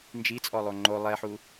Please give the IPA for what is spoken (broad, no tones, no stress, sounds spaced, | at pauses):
n d͡ʒ i t͡sʼ ɔ lˠ o ŋ͡ǃ o lˠ ɛ ħ u